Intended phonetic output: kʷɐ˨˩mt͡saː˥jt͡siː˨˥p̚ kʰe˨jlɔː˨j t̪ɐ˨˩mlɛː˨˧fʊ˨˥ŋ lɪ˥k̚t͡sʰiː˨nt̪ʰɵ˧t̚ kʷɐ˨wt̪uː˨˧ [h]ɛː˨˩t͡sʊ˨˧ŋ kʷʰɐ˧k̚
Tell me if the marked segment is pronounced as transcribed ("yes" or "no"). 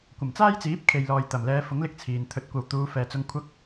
no